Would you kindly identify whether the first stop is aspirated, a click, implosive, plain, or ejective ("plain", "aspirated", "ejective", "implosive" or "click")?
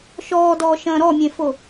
plain